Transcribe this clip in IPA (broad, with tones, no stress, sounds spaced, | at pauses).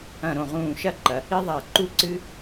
ɐ̃˧˩ ɾ õ˧˩ ʁ ũː˧˩ ʃ ɐ˥˧ ǃ ɐ˩˧ | i˥ ðˤ a˧˩ ǃ u˥ ǀ ɨ˥